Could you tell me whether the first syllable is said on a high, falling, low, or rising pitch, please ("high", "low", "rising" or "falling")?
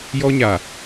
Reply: high